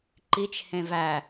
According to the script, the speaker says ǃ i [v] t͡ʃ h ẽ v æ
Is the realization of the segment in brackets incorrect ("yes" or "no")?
yes